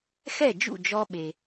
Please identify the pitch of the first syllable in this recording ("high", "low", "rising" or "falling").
falling